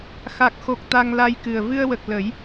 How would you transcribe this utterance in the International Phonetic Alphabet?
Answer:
xa˨˩k̚xo˨˩k̚ t̪a˧ŋla˧jkɨ˨˩ə̯ vɨ˧ə̯wə˨˩k̚ lə˨˩˦j

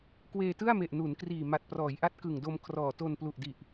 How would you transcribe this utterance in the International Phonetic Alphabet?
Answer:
kweː˧ tɯ˥˩a̯me˨˩ʔnu˩˦n kriː˨˩ma˨˩t̚prɔː˩˦j ʔa˦˥t̚ kɯ˨˩ŋdo˧m kʰrɔː˨˩to˧nplu˨˩ʔdi˨˩ʔ

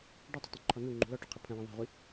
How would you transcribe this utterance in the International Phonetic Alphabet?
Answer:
ɖutˤʏtˤũǃʰɔ nuŋ͡ǃṳ lɔʈoqʰə pʰə̃wə̃ ðˤɛ̤ʁʷi

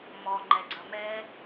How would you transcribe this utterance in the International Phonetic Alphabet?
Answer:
mɔ ŋ͡ǃɛɡ͡ǀɐmɛ

